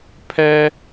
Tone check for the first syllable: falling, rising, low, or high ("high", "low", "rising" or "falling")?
high